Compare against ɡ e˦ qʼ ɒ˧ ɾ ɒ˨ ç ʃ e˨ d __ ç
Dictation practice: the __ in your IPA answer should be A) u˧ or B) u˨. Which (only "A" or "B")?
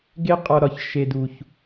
B